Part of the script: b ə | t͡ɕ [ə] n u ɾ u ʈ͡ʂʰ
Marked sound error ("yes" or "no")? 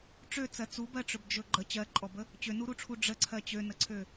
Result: yes